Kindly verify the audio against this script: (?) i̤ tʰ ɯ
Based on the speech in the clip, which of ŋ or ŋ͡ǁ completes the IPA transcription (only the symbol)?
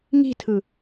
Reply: ŋ